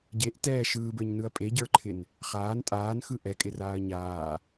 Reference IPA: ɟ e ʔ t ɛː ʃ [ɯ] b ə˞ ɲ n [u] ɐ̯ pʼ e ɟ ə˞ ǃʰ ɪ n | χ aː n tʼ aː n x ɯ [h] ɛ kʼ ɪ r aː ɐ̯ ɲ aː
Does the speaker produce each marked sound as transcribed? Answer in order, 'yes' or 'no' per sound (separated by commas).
no, no, no